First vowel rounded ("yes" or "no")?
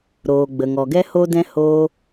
yes